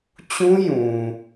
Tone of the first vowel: high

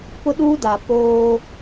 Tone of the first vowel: high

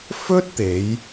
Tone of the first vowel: high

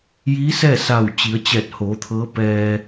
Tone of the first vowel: rising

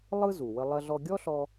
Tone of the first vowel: high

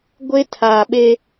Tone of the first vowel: high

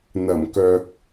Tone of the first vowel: low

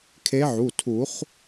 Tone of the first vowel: rising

